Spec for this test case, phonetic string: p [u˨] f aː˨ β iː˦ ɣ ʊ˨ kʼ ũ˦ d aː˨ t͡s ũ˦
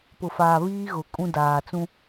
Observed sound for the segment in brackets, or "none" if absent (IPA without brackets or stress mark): ʊ˨